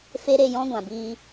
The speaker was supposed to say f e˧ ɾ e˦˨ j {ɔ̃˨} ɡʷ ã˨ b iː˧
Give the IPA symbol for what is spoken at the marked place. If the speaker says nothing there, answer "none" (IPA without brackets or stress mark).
ɔ̃˦